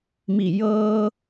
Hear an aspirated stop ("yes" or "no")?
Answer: no